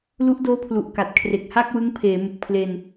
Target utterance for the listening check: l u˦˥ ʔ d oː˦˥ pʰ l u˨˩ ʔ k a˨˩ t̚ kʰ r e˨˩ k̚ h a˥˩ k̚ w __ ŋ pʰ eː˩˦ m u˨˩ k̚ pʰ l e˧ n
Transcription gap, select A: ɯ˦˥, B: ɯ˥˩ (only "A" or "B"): A